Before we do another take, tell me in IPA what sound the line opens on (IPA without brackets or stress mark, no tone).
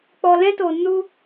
k͡p